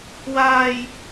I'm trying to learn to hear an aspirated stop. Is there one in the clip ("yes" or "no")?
no